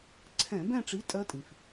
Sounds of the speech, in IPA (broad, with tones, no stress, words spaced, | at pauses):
ǀʰɛ̃˧˩˧bɛ̃˦˨ʈ͡ʂi˨˥ tʼɜ˦˥tʼĩ˩f